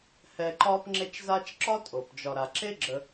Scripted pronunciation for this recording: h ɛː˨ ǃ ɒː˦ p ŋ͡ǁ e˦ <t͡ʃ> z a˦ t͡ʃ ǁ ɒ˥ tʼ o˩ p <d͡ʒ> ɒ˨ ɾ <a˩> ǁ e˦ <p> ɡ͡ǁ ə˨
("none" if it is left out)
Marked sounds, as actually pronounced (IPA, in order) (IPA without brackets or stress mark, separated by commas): t͡ʃ, d͡ʒ, a˩, none